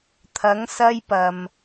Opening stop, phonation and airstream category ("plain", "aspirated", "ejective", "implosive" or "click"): aspirated